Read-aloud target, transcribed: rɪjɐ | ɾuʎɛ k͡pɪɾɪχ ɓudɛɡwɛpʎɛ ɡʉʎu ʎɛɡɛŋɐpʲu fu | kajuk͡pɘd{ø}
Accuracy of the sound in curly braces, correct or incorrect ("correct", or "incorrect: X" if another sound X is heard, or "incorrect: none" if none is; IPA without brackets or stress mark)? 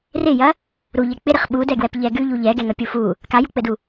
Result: incorrect: u